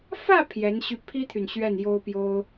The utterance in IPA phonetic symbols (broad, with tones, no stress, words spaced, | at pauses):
fä˥˩ pʰjɛ˧˥nɕy˥˩ pʰi˥t̪ʰy˨n ɕɥɛ˥˩njo˥ʊ̯pjo˥ʊ̯